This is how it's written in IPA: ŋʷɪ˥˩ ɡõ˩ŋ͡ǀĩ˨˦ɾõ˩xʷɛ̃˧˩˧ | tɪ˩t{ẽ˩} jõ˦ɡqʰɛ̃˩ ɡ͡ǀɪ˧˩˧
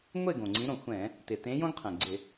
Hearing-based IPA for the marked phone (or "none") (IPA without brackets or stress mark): ẽ˨˦